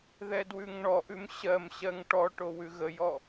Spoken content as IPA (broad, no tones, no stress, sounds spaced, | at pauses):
ð ɛ d w ʉ ŋ ɳ ɔ ʔ ʉ m ɕ ɜ m ɕ ɜ ŋ ʈ ɔ ʈ o w ʉ ɣ ə j ɔ